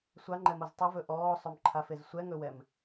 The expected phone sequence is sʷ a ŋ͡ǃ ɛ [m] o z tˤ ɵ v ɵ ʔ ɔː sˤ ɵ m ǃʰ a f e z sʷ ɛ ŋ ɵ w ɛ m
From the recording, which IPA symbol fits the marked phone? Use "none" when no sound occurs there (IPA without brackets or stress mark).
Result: m